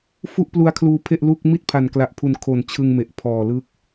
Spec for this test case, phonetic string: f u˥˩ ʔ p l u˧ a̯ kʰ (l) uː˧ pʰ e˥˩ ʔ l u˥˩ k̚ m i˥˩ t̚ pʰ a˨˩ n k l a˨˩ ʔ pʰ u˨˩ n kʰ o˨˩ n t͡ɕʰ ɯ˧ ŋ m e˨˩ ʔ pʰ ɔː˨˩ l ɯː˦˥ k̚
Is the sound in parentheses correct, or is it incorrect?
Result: correct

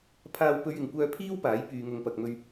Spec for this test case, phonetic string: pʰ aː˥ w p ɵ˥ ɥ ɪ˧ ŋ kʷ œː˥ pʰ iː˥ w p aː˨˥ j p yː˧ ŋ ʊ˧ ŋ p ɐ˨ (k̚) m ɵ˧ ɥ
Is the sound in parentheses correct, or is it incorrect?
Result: correct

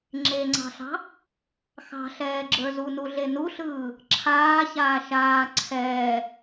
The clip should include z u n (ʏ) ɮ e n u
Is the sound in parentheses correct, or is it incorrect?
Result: incorrect: u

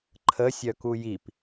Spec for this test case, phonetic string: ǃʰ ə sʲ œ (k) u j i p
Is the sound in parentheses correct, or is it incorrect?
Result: correct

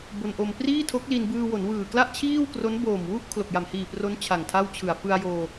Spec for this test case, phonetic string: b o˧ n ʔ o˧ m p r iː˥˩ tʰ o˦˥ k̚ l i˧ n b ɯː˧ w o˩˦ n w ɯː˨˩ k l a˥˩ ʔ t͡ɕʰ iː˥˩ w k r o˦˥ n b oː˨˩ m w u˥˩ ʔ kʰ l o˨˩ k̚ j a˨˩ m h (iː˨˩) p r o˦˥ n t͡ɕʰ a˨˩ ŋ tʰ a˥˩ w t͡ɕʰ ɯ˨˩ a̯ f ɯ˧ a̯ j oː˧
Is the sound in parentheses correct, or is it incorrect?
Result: correct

